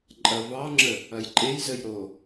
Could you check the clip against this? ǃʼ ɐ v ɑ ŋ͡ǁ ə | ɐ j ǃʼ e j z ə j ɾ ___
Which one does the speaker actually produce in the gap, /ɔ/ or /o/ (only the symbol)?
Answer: o